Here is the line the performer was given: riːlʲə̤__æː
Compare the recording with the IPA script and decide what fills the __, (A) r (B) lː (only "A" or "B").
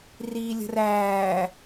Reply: A